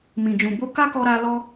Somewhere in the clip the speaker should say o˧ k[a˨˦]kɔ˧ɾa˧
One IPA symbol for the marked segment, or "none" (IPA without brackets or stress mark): a˦